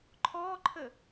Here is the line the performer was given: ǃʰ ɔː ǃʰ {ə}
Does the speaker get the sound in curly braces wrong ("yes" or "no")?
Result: no